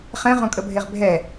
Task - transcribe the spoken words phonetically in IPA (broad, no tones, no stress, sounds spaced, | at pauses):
χ ɛ̃ ʁ õ kʼ ə bʱ e ʁ bʱ ɛ